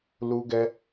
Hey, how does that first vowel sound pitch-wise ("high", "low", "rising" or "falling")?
high